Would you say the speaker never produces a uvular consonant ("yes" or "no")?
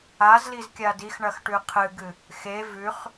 no